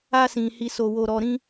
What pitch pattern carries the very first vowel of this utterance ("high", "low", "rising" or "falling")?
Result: high